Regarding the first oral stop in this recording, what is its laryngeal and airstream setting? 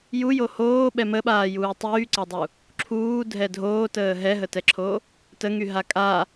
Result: implosive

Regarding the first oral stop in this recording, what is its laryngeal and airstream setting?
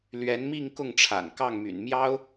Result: plain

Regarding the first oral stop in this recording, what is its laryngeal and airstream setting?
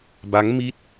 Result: plain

